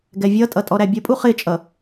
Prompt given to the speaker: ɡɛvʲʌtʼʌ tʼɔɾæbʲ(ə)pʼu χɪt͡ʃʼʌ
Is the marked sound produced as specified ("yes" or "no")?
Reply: yes